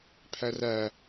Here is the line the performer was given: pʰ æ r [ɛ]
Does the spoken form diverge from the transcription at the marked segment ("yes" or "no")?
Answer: yes